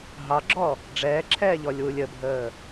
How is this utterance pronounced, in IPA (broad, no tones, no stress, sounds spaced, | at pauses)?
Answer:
ɦ ɑ ɡ͡ǁ ɔ | ɖ͡ʐ ɛː ǁʰ ɛː ʎ ɔ lʲ w u lʲ ə bʱ əː